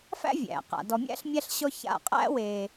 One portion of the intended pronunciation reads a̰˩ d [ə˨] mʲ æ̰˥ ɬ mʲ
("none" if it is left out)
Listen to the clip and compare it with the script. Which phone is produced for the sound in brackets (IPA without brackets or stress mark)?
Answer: ɔ˨